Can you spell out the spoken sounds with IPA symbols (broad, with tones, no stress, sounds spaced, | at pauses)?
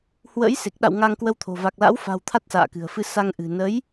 h w ə̰˧˥ j s e˨˩ k̚ ɗ a̰˧˨ w ŋ a˧ ŋ k w ə˧ w t̪ʰ o̤˨˩ v a˨˩ k̚ l a̰˧˥ w f a̤˨˩ w t̪ʰ a˦˥ t̚ s a̰ː˧˨ k ɨ̤˨˩ ə̯ f ɨ˧ s a˧ ŋ ʔ ɨ̤˨˩ n ə˨˦ j